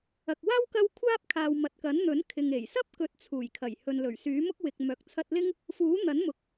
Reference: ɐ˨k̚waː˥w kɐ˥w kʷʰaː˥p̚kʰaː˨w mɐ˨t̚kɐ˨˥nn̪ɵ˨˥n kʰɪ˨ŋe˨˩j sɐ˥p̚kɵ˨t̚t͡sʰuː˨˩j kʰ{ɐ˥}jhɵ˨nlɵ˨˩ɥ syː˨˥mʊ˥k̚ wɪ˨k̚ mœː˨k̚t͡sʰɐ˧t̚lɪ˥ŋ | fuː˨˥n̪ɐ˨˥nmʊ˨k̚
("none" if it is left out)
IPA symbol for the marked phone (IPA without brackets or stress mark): ɐ˨˩